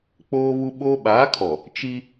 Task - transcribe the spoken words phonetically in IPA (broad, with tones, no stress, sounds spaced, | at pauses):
k͡p oː˦ β u˦ ɓ oː˦ ɓ aː˨˦ kʰ ɔ˨ | t͡ʃ i˦